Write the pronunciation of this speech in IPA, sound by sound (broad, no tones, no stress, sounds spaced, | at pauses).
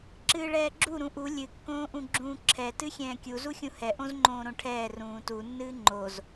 ǁ ɨː ɭ ɛː ɡ͡ǁ u ɾ ũ ʔ u lʲ ɨ kː õː ʔ ũ ɡ͡ǁ ũː ǁʰ ɛ t ɨ xʲ ɛ̃ː kʲ u z u xʲ ũ h ɛ ʔ õ z ŋ͡ǃ õː ɾ õ ʈʰ ɛː r ũː t u nː ɨː ŋ͡ǃ o z